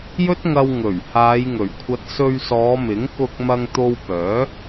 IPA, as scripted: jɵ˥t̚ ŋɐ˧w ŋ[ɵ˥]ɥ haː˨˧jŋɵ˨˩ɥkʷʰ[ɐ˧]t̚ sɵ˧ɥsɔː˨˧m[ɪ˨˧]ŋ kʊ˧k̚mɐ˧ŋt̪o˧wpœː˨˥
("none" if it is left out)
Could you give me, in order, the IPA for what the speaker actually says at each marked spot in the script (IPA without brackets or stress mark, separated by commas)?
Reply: ɵ˨˩, ɐ˧, ɪ˨˥